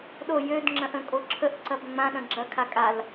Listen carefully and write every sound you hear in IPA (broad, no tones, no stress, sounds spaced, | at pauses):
ɗ o j ø d ŋ͡ǁ ɐ̃ ʔ ə̃ kʼ o ǁʰ ə ʔ ǀ ɐ b ŋ͡m ã ɗ ɐ̃ ɡ͡ǁ ɐ kʰ a kʼ a l